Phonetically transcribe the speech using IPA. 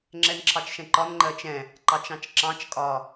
ŋ͡ǁ ɛ n ǁʰ ɑ t͡ʃ ʃ ɛ̃ ǃ ɒ n ŋ͡ǃ ɜ t͡ʃ ɛ̃ | ǃ ɑ t͡ʃ ɑ̃ t͡ʃ ǁ ɑ̃ t͡ʃ kʼ ɒ

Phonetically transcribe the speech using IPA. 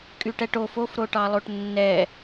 kʼ y ʈ ɛ ʈ o f o f ɾ o ʈ ɑ lˠ o ʈ nː ɛ

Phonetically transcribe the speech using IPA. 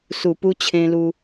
s u˨˩ p u˧ t͡ɕʰ ẽ˧ l u˧

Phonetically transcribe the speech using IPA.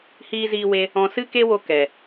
h iː˧ z iː˧ w e˧ | ɔ̃˧ s ɨ˦ k e˦ w o˧ k ɛ˨

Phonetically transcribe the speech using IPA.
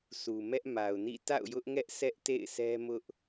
s u˨ m ɛ˦ ʔ m a˨ ʊ̯ n ḭ˦˨ t a̰˦˨ ʊ̯ j ʊ˦ ʔ ŋ ɛ˦ ʔ sʰ ɛ˦ ʔ t ḛ˦˨ ɪ̯ s ɛ˦ m ʊ˦ ʔ

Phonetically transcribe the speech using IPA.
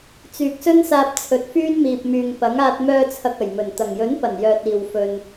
t͡s yː˨ k̚ s ɵ˥ n s aː˧ p̚ t͡sʰ ɵ˨˥ t̚ f yː˥ n m iː˨ p̚ m yː˨ ŋ p ɐ˨˥ ŋ aː˧ t̚ m œː˧ t͡sʰ ɐ˨ k̚ ɐ˨˩ j m ɵ˨˩ n t̪ ɐ˨˩ ŋ j ɵ˨˥ n p ɐ˨˩ n j œː˧ t̚ iː˨ w f ɵ˧ n

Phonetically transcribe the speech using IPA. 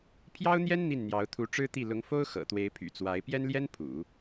pʰ j ɑ˥ ʊ̯ n̪ j ɛ˥ n n̪ i˥˩ n n̪ j ɑ˧˥ ʊ̯ t̪ʰ u˧˥ ʈ͡ʂ ɻ̩˥ t̪ i˥˩ l ʊ˧˥ ŋ f o˥ ʊ̯ x ɤ̰˨˩ t̪ w e˧˥ ɪ̯ pʰ y̰˨˩ t͡s w a˧˥ ɪ̯ p j ɛ˥ n l j ɛ˥ n pʰ ṵ˨˩˦

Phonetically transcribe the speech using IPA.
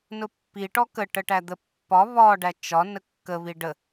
n ʊ pː i ʈ ɔ k ə ʈ ə ʈ æ d̪ ə pː ɒ β ɒ ɖ æ t͡ʃ ɒ n ə kː ə β i ɖ ə

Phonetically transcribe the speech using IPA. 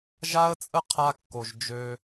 ʒ a˦ ə̯ t͡sʼ ə˦ qʰ a˧ kː o˨ ʒ d͡ʒ ø˧

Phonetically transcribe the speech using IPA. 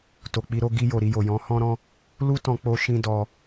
t o˨ k͡p i˧ ɾ o˦ ɡ i˧ j o˨ ɾ i˧ j o˨ j ɔ̃˨˦ h ɔ̃˦ ɾ ɔ̃˦ | l u˦ t ɔ̃˧ k͡p o˦ ʃ ĩ˦ d ɔ˧

